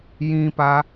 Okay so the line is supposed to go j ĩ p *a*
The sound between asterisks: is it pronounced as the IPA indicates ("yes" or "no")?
yes